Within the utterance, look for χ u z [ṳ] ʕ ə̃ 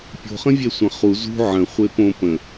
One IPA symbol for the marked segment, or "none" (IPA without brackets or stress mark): ṳ